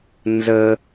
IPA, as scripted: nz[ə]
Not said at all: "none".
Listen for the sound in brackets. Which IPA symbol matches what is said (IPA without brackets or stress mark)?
ə